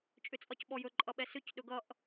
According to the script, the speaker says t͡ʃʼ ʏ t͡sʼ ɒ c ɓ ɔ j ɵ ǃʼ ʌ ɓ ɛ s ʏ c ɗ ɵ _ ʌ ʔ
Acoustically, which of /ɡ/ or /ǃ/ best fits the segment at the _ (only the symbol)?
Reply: ɡ